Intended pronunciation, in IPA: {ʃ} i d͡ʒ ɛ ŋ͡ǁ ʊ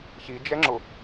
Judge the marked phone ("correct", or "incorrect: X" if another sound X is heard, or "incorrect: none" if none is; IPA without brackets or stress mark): incorrect: ç